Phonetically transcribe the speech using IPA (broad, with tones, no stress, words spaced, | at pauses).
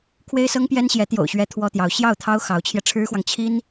kʰwe˥ɪ̯sɤ˥ŋpjɛ˥nɕjɛ˧˥ t̪jo̰˨˩ʊ̯ɕɥɛ˧˥ t̪ʰwɔ˥t̪jɑ˧˥ʊ̯ ɕjɑ˥˩ʊ̯t̪ʰɑ˥ʊ̯ xɑ˧˥ʊ̯t͡ɕʰjɛ˧ʈ͡ʂʰɻ̩˥xwɑ˨ŋ t͡ɕʰi˥n